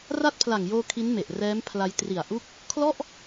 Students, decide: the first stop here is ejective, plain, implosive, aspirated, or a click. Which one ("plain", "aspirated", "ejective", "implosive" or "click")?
plain